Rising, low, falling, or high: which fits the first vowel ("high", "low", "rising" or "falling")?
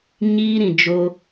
high